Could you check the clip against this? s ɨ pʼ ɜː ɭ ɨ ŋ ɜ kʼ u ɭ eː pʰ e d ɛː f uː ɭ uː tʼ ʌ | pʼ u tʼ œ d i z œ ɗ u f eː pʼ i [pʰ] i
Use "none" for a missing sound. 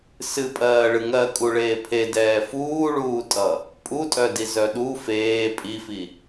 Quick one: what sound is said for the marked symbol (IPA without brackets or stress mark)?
f